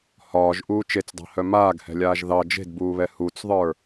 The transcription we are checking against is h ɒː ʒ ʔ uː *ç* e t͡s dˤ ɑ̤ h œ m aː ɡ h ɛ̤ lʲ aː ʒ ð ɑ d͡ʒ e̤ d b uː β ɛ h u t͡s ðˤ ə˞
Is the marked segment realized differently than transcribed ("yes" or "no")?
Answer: yes